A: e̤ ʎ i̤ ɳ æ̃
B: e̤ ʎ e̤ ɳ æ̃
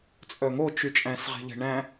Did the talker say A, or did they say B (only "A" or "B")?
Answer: B